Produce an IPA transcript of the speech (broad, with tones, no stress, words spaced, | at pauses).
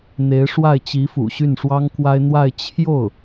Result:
n̪e˧˥ɪ̯ʂwa˥˩ɪ̯ t͡ɕi˧˥fṵ˨˩ ɕy˥˩nʂwɑ˥ŋkwa˥ɪ̯ n̪wa˥˧ɪ̯ t͡ɕʰjo˥˩ʊ̯